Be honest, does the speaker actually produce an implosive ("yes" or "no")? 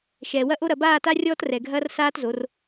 no